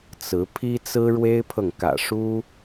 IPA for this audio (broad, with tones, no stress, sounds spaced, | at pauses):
t͡s ɹ̩˨˦ pʰ i˦ t͡s ɹ̩˦ ɻ w e˦ ɪ̯ pʰ ɤ˨ ŋ k ä̰˨˩ ʂ u˦